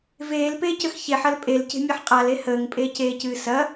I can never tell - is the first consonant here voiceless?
no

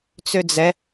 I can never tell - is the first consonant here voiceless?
yes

